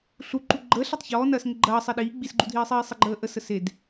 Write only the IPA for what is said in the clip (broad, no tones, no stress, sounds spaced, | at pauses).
ɬ u ǃ u ɡ͡ǃ əː ɬ a tˤ ç ɔː n ɐː s ŋ ɘ ɡ͡ǃ ɐː sˤ e ɗ iː ɡ͡b i s ɡ͡ǃ u dʱ iː sˤ iː sˤ ɘ ɡ͡ǃ əː ʔ ə s ə s e d